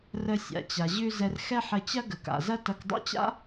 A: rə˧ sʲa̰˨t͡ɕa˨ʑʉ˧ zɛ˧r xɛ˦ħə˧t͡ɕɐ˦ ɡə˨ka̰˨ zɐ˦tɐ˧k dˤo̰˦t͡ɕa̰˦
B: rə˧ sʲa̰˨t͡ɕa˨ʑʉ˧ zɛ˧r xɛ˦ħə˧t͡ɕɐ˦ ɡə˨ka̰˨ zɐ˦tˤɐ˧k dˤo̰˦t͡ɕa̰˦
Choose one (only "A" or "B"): A